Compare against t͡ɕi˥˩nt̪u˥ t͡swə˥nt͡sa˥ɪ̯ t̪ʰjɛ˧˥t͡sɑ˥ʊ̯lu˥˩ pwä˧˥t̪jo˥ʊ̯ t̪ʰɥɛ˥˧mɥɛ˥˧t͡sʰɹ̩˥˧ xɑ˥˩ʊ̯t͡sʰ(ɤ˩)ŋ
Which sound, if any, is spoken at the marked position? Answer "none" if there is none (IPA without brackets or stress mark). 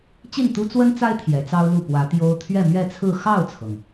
ɤ˩